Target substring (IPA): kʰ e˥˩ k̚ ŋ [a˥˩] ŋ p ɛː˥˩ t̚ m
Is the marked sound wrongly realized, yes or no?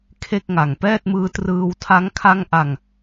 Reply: yes